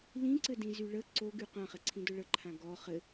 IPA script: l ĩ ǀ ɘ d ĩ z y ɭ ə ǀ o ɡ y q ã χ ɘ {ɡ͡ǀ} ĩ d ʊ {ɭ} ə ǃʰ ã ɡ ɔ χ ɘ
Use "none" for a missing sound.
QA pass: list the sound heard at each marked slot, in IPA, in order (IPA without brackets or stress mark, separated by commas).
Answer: ǀʰ, ɭ